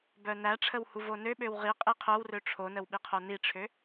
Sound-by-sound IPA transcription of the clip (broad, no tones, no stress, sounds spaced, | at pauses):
b œ n æ ʈ͡ʂʰ ə w h u v o n ø ɓ ø w ʁ i qʼ i qʰ œ w r ø ʈ͡ʂʰ o n ə w ɓ i qʰ o n i ʈ͡ʂʰ ø